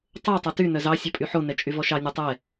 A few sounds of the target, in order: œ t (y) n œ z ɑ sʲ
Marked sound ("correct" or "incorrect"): correct